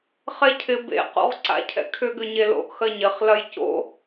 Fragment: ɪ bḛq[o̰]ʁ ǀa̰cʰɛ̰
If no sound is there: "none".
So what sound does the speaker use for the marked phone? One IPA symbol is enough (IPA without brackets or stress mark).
o̰